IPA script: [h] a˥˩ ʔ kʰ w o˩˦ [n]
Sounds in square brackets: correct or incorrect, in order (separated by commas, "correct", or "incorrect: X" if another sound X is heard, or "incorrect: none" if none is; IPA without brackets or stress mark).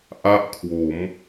incorrect: ʔ, incorrect: m